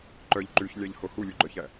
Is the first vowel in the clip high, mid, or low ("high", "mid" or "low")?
mid